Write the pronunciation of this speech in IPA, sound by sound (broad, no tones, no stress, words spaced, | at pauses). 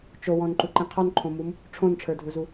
t͡ʃowɔ̃nǃuǃĩ qʰɔnǃʰõmum | ʈ͡ʂʰõnʈ͡ʂʰə˞dʱuzu